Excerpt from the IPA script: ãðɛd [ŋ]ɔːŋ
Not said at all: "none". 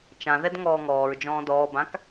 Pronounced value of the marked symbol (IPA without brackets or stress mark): ŋ